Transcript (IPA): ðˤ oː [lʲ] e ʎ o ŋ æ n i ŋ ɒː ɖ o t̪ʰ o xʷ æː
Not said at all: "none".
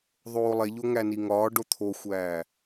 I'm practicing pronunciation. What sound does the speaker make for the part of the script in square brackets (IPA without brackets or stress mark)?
lˠ